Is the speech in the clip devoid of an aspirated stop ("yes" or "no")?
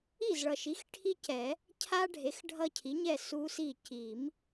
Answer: no